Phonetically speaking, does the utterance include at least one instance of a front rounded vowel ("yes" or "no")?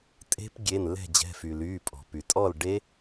yes